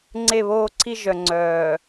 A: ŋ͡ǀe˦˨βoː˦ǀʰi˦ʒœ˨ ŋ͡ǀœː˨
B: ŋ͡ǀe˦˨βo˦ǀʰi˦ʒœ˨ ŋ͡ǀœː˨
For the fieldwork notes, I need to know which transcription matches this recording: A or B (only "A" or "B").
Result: A